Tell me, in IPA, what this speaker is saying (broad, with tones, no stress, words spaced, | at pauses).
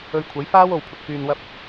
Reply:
ɵ˧ɥkʷʰɐ˨˥j faː˥w o˧wpʰʊ˨k̚ fyː˨nwɐ˧p̚